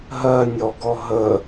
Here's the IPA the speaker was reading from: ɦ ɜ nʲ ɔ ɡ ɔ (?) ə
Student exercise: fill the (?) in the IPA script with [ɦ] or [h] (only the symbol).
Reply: ɦ